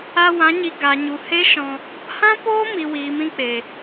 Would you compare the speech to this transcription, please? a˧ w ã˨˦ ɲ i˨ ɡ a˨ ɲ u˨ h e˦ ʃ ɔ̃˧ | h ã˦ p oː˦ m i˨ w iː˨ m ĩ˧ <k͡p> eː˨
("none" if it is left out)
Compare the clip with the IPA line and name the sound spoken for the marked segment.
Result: k͡p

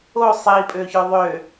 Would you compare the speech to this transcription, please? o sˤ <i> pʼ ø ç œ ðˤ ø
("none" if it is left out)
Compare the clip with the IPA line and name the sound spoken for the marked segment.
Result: i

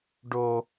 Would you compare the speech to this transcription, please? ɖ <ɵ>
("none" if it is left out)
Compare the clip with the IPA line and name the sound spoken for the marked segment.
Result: o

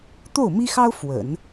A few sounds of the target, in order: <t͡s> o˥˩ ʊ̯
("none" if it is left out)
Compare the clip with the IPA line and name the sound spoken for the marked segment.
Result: t̪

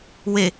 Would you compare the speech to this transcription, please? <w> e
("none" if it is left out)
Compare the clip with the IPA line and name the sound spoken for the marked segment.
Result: w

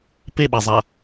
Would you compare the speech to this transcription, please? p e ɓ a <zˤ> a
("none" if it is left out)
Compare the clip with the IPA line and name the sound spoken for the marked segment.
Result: zˤ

